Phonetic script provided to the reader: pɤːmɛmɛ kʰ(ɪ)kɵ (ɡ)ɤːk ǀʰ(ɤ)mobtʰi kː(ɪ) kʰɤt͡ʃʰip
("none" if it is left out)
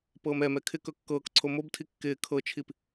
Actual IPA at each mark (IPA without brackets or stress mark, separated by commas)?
ɪ, kː, o, ɪː